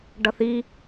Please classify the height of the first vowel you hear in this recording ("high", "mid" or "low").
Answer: mid